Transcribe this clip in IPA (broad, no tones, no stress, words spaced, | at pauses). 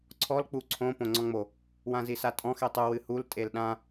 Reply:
ǀʰɔl k͡puǀʰõ põŋ͡ǀɔ̃ŋ͡mo | wãzisatʼɔ̃x etˤu wɨhul tʼelɗã